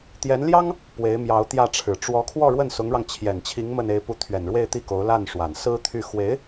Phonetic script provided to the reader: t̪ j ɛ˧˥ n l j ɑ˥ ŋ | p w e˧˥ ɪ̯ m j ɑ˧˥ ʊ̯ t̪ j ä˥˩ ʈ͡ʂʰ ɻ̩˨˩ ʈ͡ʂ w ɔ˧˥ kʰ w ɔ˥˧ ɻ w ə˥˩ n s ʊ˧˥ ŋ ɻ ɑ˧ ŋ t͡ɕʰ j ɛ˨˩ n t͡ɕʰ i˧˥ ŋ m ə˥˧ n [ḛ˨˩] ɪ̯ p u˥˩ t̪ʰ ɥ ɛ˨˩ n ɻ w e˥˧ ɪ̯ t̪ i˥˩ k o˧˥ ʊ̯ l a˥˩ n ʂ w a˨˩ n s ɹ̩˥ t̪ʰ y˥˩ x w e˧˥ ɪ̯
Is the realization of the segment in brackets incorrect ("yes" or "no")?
yes